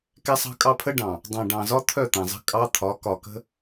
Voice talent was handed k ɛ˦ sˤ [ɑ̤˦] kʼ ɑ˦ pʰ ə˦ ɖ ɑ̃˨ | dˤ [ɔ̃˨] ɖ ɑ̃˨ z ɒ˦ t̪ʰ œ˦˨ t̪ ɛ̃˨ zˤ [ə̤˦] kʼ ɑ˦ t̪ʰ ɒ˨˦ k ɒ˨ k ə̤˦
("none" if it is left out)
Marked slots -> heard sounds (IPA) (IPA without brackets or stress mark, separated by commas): ɑ̤˦, ɑ̃˨, ə̤˦